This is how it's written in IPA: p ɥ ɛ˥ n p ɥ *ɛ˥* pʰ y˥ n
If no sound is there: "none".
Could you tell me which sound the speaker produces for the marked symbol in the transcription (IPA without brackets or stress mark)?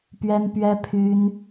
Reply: ɛ˥